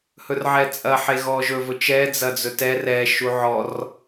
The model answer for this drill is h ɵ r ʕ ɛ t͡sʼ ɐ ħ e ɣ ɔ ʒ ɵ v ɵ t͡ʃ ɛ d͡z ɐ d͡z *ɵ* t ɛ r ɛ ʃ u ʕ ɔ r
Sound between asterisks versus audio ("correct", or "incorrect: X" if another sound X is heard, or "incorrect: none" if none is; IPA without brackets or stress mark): correct